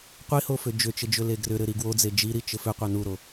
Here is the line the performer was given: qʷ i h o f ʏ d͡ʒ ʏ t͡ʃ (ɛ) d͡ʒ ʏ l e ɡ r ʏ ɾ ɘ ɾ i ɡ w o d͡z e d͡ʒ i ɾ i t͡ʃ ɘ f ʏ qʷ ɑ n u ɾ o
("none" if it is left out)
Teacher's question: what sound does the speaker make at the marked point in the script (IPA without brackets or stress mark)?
ɘ